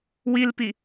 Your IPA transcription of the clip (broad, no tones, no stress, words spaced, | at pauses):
wilpi